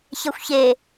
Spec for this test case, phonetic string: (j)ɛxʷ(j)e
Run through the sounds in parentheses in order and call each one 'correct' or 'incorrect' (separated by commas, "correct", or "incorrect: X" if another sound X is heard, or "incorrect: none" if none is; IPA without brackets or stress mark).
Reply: incorrect: ç, incorrect: ç